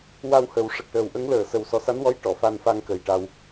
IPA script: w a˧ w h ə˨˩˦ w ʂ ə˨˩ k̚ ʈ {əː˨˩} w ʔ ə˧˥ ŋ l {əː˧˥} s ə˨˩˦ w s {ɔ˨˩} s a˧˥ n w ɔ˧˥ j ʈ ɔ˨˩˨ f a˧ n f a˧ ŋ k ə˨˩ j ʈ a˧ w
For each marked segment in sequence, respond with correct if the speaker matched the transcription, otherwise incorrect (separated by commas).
correct, incorrect, correct